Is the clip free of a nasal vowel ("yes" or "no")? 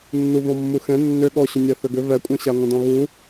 no